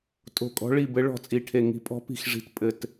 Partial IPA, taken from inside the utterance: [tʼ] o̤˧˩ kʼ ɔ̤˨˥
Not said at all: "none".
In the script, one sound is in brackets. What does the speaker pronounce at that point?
tʼ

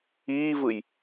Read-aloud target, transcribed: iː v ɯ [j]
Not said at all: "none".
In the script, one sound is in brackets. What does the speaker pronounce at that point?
j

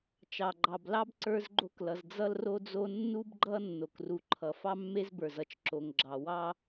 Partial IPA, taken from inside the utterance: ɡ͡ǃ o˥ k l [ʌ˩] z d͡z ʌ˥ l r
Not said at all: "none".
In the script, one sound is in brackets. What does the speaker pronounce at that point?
ʌ˩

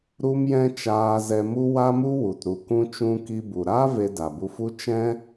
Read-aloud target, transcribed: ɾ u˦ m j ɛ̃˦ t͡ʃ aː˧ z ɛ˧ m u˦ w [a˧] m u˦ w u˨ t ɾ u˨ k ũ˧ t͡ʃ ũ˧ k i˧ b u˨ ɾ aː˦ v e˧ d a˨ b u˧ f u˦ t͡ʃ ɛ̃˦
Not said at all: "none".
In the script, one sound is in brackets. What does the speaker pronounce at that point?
a˦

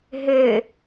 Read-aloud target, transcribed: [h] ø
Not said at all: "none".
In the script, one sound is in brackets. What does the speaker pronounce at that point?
ɦ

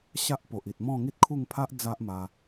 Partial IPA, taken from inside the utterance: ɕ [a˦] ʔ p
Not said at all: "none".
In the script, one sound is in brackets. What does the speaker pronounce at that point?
a˦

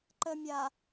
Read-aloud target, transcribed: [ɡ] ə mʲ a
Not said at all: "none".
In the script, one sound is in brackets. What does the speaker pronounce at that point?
ǃ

